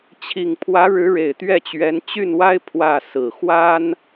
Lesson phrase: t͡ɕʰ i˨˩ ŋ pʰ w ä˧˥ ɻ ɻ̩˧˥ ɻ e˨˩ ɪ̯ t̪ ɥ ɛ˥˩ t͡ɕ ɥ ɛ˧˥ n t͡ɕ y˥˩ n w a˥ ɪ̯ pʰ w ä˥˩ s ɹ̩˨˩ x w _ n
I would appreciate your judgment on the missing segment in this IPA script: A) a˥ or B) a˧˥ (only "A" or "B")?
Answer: A